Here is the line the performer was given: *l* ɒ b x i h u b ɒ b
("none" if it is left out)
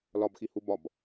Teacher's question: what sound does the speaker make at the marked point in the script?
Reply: l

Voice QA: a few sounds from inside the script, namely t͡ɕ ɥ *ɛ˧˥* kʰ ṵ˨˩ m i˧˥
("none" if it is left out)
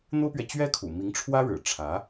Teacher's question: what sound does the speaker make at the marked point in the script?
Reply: ɛ˥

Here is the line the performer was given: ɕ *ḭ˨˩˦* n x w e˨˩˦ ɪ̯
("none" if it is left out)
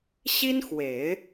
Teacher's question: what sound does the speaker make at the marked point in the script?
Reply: i˥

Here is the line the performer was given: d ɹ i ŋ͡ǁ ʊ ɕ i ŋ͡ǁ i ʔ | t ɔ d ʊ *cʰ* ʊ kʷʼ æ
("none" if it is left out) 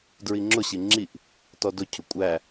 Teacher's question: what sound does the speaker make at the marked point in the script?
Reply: cʰ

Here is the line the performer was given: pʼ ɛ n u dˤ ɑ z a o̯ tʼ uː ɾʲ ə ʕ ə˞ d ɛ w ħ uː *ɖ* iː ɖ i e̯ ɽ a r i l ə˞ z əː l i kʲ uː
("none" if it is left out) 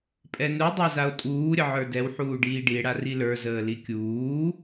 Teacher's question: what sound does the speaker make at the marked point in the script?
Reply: ɖ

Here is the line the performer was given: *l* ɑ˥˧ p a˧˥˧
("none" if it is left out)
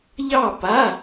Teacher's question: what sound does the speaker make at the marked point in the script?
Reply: ʎ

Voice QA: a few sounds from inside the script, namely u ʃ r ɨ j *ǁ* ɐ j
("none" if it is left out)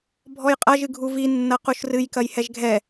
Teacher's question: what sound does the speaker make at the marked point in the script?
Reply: k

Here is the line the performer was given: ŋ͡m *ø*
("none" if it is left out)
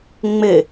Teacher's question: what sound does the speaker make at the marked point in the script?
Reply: ɘ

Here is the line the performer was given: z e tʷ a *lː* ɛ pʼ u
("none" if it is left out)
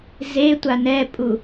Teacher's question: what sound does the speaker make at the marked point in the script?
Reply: n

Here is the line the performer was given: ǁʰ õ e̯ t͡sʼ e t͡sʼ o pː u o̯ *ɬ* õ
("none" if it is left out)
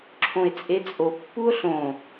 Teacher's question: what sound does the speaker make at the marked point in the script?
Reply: ɬ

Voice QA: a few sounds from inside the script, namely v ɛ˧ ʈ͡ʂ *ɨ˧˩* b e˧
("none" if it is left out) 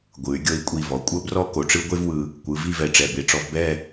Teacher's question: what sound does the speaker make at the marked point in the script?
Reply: ɛ˧˩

